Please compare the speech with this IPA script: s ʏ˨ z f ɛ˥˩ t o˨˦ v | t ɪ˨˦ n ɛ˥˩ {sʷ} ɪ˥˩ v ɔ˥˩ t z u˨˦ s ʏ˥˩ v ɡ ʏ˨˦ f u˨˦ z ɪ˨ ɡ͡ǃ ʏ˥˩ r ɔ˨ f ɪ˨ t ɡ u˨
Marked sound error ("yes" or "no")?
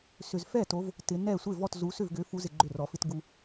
no